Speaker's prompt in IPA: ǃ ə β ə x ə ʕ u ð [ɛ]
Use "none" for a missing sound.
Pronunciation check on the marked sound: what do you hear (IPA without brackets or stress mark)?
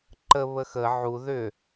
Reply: ʏ